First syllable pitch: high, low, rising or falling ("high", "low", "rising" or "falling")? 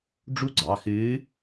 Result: falling